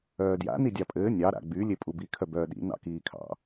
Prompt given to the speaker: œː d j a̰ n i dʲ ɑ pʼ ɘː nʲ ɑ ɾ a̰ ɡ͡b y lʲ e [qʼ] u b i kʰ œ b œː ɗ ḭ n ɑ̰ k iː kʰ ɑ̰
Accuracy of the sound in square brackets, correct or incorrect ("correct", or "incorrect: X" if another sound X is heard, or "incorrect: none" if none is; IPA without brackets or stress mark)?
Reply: incorrect: pʼ